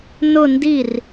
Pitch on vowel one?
falling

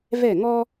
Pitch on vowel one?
falling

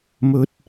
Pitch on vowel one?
low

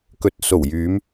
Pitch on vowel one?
rising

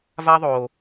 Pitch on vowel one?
high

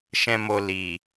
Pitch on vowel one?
high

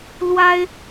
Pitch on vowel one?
high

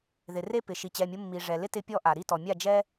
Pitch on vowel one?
low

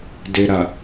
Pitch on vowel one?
low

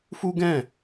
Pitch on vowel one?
high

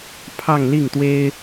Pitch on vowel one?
falling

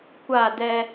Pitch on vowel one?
falling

